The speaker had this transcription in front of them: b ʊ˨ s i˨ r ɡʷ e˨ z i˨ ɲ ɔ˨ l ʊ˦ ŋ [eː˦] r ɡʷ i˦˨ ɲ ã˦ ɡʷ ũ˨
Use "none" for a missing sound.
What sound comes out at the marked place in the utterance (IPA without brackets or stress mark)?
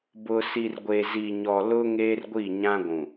eː˦